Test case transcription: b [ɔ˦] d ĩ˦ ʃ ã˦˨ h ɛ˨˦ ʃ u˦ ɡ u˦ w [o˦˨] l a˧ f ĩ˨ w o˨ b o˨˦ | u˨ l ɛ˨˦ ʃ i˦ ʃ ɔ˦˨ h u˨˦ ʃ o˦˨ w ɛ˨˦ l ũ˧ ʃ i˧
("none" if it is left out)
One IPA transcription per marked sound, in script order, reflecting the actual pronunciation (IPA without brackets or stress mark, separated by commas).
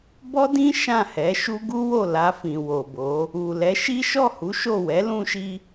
ɔ˦, o˦˨